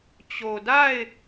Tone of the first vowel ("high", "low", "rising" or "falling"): low